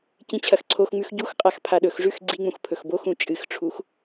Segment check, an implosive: present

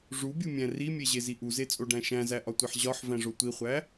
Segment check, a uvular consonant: present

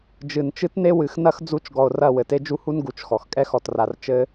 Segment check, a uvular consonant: absent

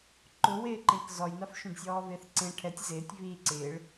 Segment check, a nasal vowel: present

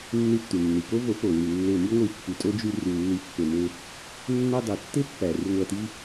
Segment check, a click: absent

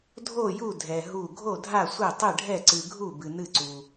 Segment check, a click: present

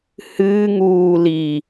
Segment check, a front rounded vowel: absent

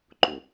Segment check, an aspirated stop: absent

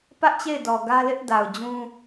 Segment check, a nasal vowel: present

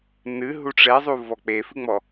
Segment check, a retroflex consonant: present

